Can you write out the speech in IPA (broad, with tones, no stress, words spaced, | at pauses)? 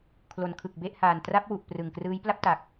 kʰlo˩˦nkʰɯ˨˩k̚be˥˩ʔhaː˨˩n tra˦˥p̚wu˨˩ʔ prɯ˨˩ŋkrɯː˦˥j pla˥˩p̚ta˨˩k̚